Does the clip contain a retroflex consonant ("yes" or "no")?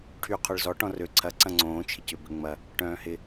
yes